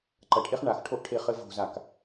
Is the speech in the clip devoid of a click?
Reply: no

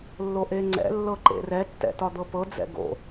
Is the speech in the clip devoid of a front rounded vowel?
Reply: yes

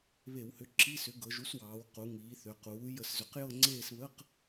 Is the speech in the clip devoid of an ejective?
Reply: yes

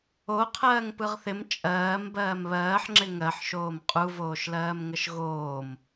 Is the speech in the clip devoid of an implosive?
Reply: yes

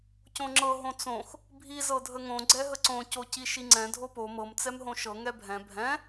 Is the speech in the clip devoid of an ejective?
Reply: yes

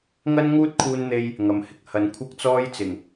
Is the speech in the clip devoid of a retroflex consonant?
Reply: yes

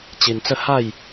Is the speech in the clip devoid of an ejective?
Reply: yes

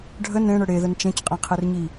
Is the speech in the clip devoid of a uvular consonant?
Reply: no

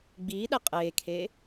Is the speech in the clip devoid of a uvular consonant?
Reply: no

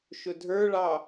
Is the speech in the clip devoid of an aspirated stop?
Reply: yes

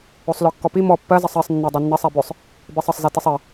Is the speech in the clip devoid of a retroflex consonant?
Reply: yes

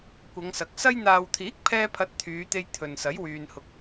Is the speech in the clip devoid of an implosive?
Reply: yes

